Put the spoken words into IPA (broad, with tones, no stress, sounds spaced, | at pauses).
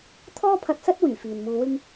t̪ʰ ɔː˥ pʰ ɐ˧ t̚ s ɐ˥ t̚ w yː˨˩ f iː˨ n m uː˧ w ɪ˥ ŋ